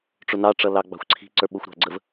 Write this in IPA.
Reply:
ʈ͡ʂ ʊ n ɑ ʈ͡ʂ ʌ l ɑ ɡ͡b ɑ̤ xʷ ǀʰ i̤ ǀ ə˞ ɓ ʊ xʷ ɾ ɑ̤ ɡ͡ǀ ə v

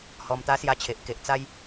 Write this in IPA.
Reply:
h ɔ˧ m t̪ a˦ s j a˧ t͡ɕʰ e˨ ʔ k e˨ ʔ t͡s a˧ j

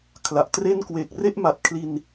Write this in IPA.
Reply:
kʰ l a˨˩ ʔ t r e˥˩ n k w e˨˩ k̚ r e˥˩ ʔ m a˨˩ t̚ kʰ l i˧ n

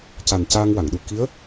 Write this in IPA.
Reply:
c a˨˩ n c aː˧ ŋ w a˨˩˨ ŋ ɗ u˨˩ k i˧˥ ə̯

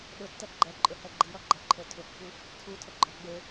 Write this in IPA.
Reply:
ɗ ʊ tː ɛ ɡ͡ǃ ɛ ǃʼ ʊ h ɛ ɡ͡ǃ i ɾ ɔ ɡ͡ǃ ʌ ǃʰ ə˞ tʰ ʊ kː u | tʰ u tʰ ə ɡ͡ǃ ɔ ɡ͡b e

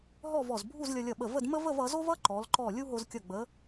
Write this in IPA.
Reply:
ɦ ɔ˥˧ v ɔ˧˩ z bʱ u˥˧ z lʲ ʌ˧ lʲ ʌ˧˩ ɓ ə˧˩ v ə˥˧ d m ə˥ v ə˥˧ v ʌ˩˧ z o˥ v ʌ˥ ǃ ɔ˩˧ l ǃ ɔ˧˩ lʲ u˥ ɦ o˧ z kʲ ʌ˧˩ ɡ͡b ə˩˧

